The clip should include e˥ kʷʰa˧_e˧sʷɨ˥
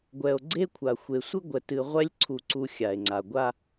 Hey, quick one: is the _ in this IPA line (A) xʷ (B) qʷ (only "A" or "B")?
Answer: A